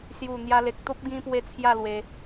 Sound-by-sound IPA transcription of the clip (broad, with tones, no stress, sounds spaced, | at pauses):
s j u˨˩ n̪ j a˧ l e˨ k̚ t̪ o˦ p̚ ɡ ĩ˧ p w e˧ t͡sʰ j a˥˧ l w e˧